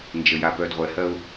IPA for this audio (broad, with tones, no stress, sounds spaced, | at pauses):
n d͡ʒ ə˨ j a˨ p œ˨ d ʁʷ ɛ˨ h ɜ˦ ʊ̯